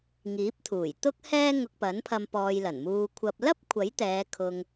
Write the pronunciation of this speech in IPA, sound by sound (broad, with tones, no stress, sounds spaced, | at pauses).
ŋ iː˨˥ p̚ t̪ʰ uː˨˩ j t̪ ʊ˥ k̚ h ɛː˥ ŋ ʊ˧ k̚ p ɐ˨˥ n pʰ ɐ˧ m p ɔː˧ j l ɐ˨˩ n m uː˧ kʷʰ ɐ˨ p̚ l ɐ˥ p̚ kʷʰ ɐ˨˥ j t̪ ɛː˨˧ kʰ ʊ˧ ŋ